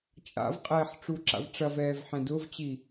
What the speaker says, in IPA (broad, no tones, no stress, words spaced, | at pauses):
t͡ʃʼa̰vqʼɛːħ ʈ͡ʂuǁa̰vʈ͡ʂɐvɛːv ħɛ̃dʊvt͡ɕi